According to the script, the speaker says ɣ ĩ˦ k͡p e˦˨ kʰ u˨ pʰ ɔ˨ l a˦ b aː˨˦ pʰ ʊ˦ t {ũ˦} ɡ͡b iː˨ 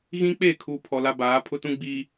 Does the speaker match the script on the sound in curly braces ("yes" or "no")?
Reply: yes